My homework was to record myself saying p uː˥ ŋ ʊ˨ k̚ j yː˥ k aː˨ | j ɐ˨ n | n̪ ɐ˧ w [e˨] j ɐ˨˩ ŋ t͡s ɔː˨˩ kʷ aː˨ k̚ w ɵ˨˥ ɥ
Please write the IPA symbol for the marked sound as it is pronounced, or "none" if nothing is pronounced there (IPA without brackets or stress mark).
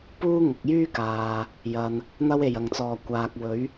e˨˩